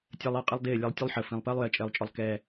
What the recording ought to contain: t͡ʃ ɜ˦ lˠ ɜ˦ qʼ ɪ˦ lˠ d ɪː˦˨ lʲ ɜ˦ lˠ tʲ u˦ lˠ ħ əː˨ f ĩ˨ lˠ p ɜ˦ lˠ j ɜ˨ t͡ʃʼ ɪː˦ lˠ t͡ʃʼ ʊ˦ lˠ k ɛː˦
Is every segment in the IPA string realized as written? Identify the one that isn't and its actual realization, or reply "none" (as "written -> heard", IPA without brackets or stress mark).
t͡ʃ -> tʲ